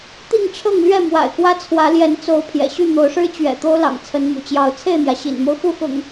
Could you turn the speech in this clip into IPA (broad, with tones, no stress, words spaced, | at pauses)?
t̪i˥˨ŋʈ͡ʂʰɤ˥˨ŋlɥɛ˥˨ mwa̰˨˩ɪ̯kwä˦t͡sʰwä˨˦ ljɛ˨˦nt͡so˨˦ʊ̯ pʰjɛ̰˨˩ɕy˥˨ n̪o˨˦ʊ̯ʂɻ̩˦ t͡ɕɥɛ̰˨˩ t̪o˦ʊ̯lɑ̰˨˩ŋ t͡sʰə˨˦nmṵ˨˩t͡ɕjɑ˨˦ʊ̯ t͡sʰe˥˨ɪ̯n̪jä˩ ɕḭ˨˩nmo˦ʊ̯ xu˥˨xʊ̰˨˩ŋ